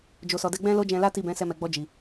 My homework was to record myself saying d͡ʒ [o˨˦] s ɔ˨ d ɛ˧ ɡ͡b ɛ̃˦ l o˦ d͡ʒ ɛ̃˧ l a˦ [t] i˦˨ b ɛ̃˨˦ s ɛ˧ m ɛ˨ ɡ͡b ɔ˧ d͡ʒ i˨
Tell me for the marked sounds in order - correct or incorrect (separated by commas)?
incorrect, correct